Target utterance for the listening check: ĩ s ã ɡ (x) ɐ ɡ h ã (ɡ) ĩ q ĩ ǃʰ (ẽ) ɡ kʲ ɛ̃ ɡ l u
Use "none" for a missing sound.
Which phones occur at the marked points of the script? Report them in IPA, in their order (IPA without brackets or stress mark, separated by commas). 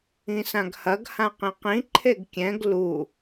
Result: h, q, e